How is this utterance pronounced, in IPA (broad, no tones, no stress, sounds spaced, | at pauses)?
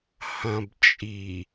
h ɐ̃ b t͡ʃʼ i